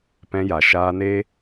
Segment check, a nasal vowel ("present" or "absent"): present